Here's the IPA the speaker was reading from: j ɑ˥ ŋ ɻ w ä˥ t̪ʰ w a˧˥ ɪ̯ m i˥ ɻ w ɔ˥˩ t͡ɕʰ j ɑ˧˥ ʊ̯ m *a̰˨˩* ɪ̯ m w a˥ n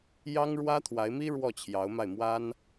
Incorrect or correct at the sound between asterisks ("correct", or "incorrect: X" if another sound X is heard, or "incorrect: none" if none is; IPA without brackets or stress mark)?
incorrect: a˥˩